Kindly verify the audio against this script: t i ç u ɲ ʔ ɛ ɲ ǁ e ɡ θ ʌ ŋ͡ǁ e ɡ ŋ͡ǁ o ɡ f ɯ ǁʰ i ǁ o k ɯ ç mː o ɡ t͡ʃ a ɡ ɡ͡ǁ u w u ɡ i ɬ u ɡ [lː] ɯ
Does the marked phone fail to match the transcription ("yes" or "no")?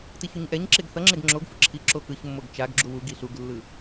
no